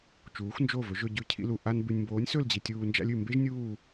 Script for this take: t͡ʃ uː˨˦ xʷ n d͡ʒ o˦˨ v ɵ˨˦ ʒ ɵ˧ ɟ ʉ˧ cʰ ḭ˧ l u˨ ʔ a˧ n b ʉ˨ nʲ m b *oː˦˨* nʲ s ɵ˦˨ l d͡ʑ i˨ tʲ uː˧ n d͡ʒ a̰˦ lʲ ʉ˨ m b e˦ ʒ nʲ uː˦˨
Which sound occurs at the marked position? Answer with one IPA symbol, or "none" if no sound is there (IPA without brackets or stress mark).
oː˨˦